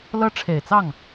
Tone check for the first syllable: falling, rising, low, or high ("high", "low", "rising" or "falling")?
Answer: high